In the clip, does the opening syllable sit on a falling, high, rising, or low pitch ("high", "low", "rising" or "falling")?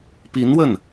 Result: rising